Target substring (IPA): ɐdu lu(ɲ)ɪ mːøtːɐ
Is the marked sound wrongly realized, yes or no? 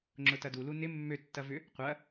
yes